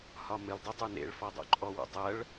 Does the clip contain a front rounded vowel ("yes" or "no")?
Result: no